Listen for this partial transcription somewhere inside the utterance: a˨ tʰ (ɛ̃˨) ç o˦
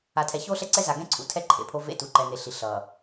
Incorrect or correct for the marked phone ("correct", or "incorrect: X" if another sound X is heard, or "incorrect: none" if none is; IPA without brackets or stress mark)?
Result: incorrect: ɛ˨